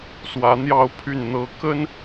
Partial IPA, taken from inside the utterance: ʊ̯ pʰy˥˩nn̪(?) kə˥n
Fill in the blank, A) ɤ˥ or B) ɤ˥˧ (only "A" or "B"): A